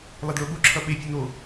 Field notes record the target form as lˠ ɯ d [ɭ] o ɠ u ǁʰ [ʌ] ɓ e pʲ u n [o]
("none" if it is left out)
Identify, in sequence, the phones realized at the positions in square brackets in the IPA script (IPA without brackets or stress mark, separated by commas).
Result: ɭ, ʌ, o